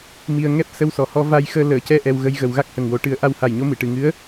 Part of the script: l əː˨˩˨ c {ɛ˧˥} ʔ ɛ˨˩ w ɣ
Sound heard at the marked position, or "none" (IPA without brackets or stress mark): ɛ˧˥